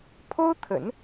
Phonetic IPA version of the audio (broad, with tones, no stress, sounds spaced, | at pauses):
pʰ o˥ ʊ̯ t̪ʰ ə̰˨˩˦ n